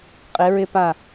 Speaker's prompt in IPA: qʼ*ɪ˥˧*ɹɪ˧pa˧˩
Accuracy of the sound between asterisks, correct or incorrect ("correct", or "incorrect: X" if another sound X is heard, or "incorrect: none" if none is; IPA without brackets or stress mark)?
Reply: incorrect: ɪ˩˧